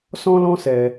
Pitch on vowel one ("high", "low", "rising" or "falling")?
high